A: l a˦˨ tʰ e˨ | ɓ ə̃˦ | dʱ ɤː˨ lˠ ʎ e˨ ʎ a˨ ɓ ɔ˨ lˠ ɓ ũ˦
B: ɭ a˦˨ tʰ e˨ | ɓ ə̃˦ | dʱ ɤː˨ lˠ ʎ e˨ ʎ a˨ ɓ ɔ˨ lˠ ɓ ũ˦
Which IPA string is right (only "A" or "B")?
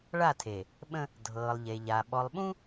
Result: B